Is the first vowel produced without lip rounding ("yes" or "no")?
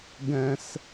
yes